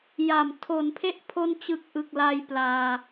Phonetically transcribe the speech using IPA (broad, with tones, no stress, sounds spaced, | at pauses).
j a˨˩ m tʰ o˩˦ n pʰ e˦˥ ʔ pʰ o˧ n t͡ɕ ɯ˨˩ k̚ ʔ ɯ˨˩ k̚ l a˧ j p l aː˧